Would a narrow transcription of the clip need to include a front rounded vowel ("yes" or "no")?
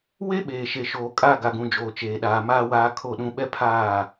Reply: no